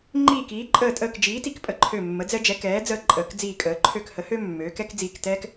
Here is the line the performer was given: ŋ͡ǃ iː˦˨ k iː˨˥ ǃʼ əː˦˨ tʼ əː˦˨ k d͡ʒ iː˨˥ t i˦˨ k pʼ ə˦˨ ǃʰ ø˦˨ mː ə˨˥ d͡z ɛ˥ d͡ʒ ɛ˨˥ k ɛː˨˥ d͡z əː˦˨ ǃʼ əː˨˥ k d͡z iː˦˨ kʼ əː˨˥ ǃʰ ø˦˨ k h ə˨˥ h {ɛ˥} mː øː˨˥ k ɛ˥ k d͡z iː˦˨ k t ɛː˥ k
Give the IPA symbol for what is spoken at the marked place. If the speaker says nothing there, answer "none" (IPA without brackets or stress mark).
ø˥